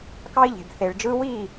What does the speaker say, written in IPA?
k ɑ˥ i̯ ʎ e̤˧ b θ e˧ ɭ d͡ʒ ɯ˥ w i˥˧

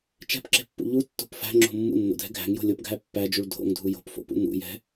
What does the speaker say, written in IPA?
t͡ʃ ɛ̤ p ǁ e̤ pː ṵ ʎ u tː o̤ p f æ̤ ŋ͡ǁ o̤ mː ṵ nː o̰ dʱ ɛ̤ ɡʱ æ̤ ŋ j o̤ lʲ o p ɡʱ æ pː æ d͡ʒ u ɭ dʱ o̰ ŋ dʱ u j o̤ p f o̰ p ṵ n ṵ j ɛ̤

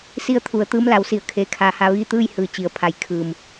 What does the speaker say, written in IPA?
s i˧ ə̯ t̪ʰ u˩˧ ə̯ t̪ ɯː˧˥ m l a˩˧ w s i˩˧ ə̯ kʰ eː˩ kʰ a˩˧ h a˧ ʋ iː˥˨ t̪ ɯː˥˨ j h ɯː˩ t͡ɕ i˩ ə̯ pʰ a˩˧ j kʰ ɯː˩ m

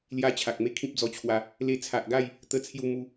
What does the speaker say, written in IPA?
l j a˦ t͡ɕʰ a˨ k̚ m e˥˧ kʰ ĩ˦ p̚ d͡z ɔ˧ t͡ɕʰ w a˧ | l e˧ t͡sʰ a˨ ʔ ɡ a˥˧ j | t̪ ə˥˧ t͡sʰ j u˥˧ m u˦

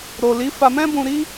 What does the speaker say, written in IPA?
ɾ o˨ l i˨˦ f a˧ m ɛ̃˦ b ũ˧ ɾ i˦

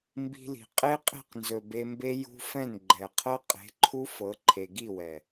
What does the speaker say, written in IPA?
m b i̤˧ l i̤˨ qʼ e˦ qʼ e̤˦˨ q n z ɵ˨ b e˧ m b e˦ j ṳ˦ f ɛ̃˦˨ n ɡ͡ǃ ɛ˨ qʰ ɤ˦ qʼ e̤˨˦ ǃʰ u˦ f ɤ˨˦ ǃʰ e˨ ɡ i˦˨ w ɛ˨

